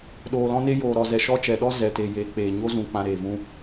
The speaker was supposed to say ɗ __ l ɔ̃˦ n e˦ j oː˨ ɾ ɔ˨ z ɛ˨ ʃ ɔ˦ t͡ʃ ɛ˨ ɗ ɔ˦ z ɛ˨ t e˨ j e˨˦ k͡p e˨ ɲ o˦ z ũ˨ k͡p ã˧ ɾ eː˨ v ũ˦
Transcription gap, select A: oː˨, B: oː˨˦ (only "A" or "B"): A